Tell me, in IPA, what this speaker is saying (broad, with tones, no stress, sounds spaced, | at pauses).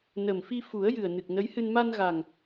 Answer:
n ə˨˩ m f i˧ f u˨˩˦ ə̯ j ɨ˨˩ ə̯ n ɨ˨˩ k̚ n ə˧˥ j h ɨ˧ n m a˧ n ɣ a˨˩ ŋ